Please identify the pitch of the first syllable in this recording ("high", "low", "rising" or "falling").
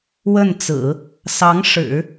falling